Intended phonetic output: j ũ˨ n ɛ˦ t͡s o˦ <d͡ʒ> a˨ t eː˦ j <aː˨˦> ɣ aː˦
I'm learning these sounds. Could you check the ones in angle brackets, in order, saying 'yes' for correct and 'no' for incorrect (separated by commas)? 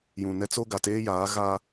no, yes